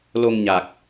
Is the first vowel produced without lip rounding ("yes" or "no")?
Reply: no